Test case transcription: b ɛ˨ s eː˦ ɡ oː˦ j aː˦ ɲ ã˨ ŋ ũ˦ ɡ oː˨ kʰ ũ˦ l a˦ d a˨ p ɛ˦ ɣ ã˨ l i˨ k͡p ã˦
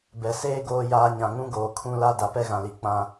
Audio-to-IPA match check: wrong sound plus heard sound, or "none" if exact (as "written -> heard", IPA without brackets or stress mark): none